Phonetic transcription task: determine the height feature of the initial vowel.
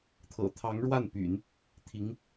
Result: mid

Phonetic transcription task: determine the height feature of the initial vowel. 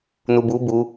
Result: high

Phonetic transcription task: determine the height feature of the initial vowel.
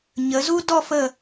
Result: mid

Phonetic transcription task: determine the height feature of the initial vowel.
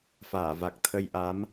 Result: low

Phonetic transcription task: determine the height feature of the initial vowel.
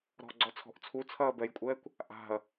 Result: mid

